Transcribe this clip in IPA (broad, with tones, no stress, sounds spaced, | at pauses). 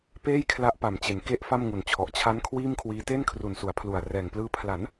p eː˥˩ j kʰ l a˦˥ ʔ p a˨˩ m t͡ɕ e˩˦ n k e˦˥ ʔ f a˥˩ m ŋ u˨˩ n t͡ɕʰ ɔ˨˩ ʔ t͡ɕʰ a˦˥ n kʰ w iː˥˩ m kʰ w iː˦˥ t e˥˩ n kʰ r u˨˩ n s u˩˦ a̯ pʰ l u˨˩ a̯ r ɛː˨˩ ŋ p l ɯː˧ pʰ l a˩˦ n